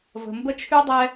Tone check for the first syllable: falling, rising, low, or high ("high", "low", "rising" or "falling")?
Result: low